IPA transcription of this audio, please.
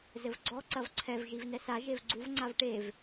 z ɘ v ɡ͡ǀ ɔ ǀ ɐ v ǀʰ ɛ v ʒ i v n ɛ s a ʒ e v ɡ͡ǀ u v ŋ͡ǀ a v ʈ e v

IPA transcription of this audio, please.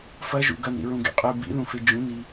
f ɐ ʒ ṵ ɡ ɐ n ɾ ḭ ɹ ũ ɡ ḛ qʼ ɨ b ḭ ð ũ f e d͡ʒ ũ n i

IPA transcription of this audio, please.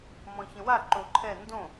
m ɔ̃ ç ə̃ w a ǃ o ǃʰ ɛ n d õ

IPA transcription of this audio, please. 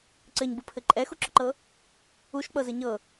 ǀ ɘ ɲ b u pʰ ɘ ǃʼ ɛ x u ǁ ʊ ǃ ɤ | u ʃ k͡p ɤ z ɘ ɲ ɤ

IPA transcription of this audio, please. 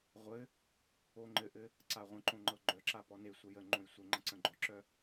ʁʷ ɘ | o ŋ͡ǃ ɘ ʔ ɘ | ǀ a ʁʷ ə̃ ǃ õ ŋ͡ǃ ɤ ɡ͡ǃ œ ǁ a p ɔ n e sʷ ə j ə ŋ͡ǃ õ j sʷ ɘ ŋ͡ǃ ã ǀ ə̃ ɡ͡ǃ ɔ ǁ œ

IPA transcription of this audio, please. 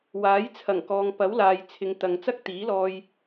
w aː˨˥ j t͡sʰ ɐ˨˩ ŋ k ɔː˨ ŋ p ɐ˨˥ w l aː˨ j t͡sʰ ɪ˨˧ ŋ t̪ ɐ˨ ŋ t͡s ɐ˥ k̚ t̪ iː˨˥ l ɔː˧ j

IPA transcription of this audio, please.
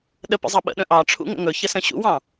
ɗ ə p ə̰ zˤ ɑ ɓ ə̰ ɗ ə̃ ʔ ɑ ʈ͡ʂʰ ṵ ŋ ə̰ ŋ ɵ ç ə s ə̃ ɕ ṵ w ɑ̃

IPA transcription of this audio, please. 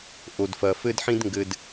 ʔ o˨ d f ɐ˨ f ɘ˦ d ħ ĩ˦ d ŋ ɡ ɘ˧ d

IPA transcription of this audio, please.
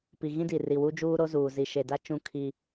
p i˨ ɣ ĩ˦ d i˨ r i˨ w u˦ d͡ʒ uː˦ ɾ o˦ z uː˨ z i˨ ʃ e˨ d a˦ t͡ʃ ũ˦ kʰ i˦

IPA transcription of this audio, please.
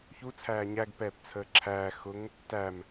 ç u t͡sʰ æː ɲ æ ɡ p ɛː p t͡sʰ əː ǁʰ æː x ʊ ŋ | t æ m

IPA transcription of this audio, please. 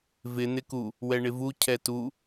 v ɪ n̪ ɪ k u | w ɛ ɳ ɪ v u cʰ ɛ t u

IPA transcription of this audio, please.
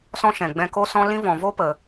s ɔ̃˦ ʃ ɛ̃˨ ɡ͡b ɛ̃˧ k o˦ s ɔ̃˦ l ĩ˦ v ɔ̃˨ v o˦ p ə˨

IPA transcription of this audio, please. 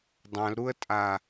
dˤ ã l ɾ u ə̯ tʼ a

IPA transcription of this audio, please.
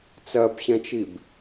t͡s ɜ b ɕ ɛ̃ t͡ʃ i b

